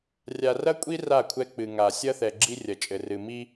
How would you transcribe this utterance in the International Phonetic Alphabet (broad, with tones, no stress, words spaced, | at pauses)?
rʲa˨rɐ˦kʷʼi˦ ra˦˨kʷʰɛ˦ k͡pɨ˨ŋa˨ sʲɐ˦θɛ˨ ɡ͡ǁi˦rʲɐ˨t͡ʃʼɘ˨rɨ˨ mi˦